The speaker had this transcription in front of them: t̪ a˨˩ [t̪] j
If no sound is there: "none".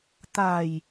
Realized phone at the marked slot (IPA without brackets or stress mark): none